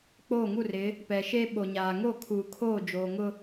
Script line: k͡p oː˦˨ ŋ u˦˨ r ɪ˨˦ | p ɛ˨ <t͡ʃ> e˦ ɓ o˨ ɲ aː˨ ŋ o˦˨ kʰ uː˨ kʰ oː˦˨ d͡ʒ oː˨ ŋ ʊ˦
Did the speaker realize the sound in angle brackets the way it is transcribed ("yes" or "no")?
no